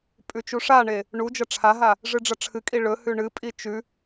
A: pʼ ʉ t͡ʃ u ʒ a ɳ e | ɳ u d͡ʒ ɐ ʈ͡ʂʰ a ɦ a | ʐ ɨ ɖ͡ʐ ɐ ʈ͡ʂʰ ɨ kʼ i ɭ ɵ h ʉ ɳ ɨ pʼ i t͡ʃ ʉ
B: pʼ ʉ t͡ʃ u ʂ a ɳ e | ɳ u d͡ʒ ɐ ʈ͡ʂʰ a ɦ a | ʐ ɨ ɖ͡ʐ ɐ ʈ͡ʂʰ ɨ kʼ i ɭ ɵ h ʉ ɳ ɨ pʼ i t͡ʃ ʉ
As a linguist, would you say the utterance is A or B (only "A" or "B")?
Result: B